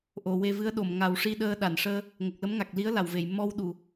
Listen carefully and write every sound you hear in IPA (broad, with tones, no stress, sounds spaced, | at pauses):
ʔ o˨˩˨ w e˧ v ɨ˧˥ ə̯ ɗ o˨˩˨ m ŋ a˨˩˦ w ʂ i˧ ɗ əː˧ ɗ a˨˩˨ n ʂ əː˧ | ŋ ə˨˩ k̚ l ə˧˥ m ŋ a˨˩ k̚ l i˧˥ ə̯ l a˨˩˨ w v e˨˩˨ j m ɔ˧ w ɗ u˨˩˨